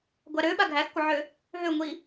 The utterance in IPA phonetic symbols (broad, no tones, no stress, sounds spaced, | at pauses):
ɡʷ a ɾ ø ɓ a ɡʱ æ x kʷ ə ʕ ø | ɦ ø ŋʷ i